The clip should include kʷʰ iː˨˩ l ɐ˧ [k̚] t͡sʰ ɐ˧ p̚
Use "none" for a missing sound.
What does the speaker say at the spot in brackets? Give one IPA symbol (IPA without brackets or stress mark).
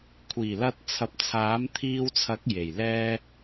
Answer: t̚